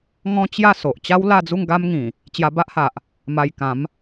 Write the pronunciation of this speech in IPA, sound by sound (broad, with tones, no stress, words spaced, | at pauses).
ŋɔ̃˦t͡ɕja˥˧ so˨ʔ t͡ɕa˦wla˥˧d͡zu˥˧ŋ ɡa˦mŋĩ˨˩ | t͡ɕja˧ba˦ʔha˨ʔ | ma˧jkã˨˦m